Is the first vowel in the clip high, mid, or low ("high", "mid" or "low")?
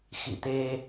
high